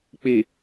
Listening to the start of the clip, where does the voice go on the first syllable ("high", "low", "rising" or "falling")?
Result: low